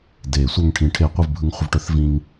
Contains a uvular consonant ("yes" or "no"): yes